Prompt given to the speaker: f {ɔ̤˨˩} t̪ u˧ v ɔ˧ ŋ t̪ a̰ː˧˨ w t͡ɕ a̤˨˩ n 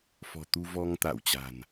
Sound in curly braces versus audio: correct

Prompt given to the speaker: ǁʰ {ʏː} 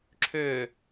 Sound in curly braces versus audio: correct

